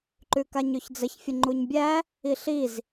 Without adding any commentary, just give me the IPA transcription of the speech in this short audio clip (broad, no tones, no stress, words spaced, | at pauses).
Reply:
ǃʉkaɲʉçd͡zəç fʲəŋ͡ǃuɲbʲæ | iɬiz